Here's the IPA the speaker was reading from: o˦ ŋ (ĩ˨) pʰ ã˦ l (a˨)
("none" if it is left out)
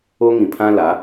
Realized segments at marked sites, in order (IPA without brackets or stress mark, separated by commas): ĩ˨, a˨˦